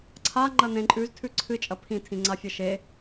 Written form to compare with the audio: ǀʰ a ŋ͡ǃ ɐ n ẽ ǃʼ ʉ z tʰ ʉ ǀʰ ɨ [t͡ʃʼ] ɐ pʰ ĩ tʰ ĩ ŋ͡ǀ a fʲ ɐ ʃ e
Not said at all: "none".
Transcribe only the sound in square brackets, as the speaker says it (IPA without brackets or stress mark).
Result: t͡ʃʼ